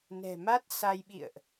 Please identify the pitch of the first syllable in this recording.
low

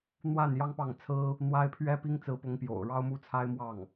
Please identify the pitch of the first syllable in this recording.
falling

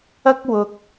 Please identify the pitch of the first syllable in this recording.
high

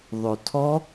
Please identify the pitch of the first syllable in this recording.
low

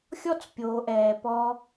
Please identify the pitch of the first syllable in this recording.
high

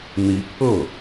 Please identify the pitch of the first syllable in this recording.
rising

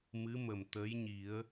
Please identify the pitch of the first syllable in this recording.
rising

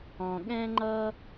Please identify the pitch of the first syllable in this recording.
low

